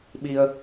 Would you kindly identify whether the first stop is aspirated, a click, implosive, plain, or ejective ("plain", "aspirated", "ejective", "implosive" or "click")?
implosive